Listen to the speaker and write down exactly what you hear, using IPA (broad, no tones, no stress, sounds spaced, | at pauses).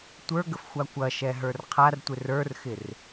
tʷ ə˞ ɡ ə f xʷ a kʷ ɐ ʃ ɛ ɦ ə˞ r qʰ a r tʷ ɪ r ə˞ r x ɪ r